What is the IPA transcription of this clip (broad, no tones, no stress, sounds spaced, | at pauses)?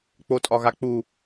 k͡p o tʼ ɒ ɣ a k͡p u